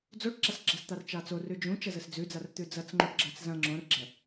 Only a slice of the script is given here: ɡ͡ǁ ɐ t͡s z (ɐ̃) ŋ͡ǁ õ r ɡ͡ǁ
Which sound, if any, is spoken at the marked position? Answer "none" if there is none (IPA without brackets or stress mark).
ɐ̃